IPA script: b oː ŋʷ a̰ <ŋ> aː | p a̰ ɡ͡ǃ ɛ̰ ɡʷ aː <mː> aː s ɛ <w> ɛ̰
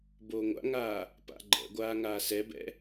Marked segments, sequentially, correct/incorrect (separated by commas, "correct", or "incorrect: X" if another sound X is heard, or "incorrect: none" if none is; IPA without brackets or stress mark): correct, incorrect: ŋ, incorrect: b